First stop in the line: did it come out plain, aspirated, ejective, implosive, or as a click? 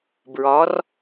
plain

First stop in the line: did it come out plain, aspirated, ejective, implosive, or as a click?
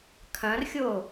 aspirated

